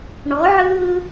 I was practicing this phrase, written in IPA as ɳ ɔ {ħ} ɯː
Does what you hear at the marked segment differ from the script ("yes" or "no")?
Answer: yes